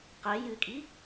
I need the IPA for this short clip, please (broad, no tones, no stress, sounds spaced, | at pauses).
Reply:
q ɛ j ɨ kʼ i